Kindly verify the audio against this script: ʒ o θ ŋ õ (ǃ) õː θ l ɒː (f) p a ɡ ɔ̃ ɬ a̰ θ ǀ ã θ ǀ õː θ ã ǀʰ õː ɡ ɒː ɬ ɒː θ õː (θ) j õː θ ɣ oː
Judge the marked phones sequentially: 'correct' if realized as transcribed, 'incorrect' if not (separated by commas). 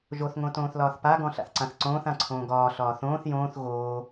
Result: incorrect, incorrect, correct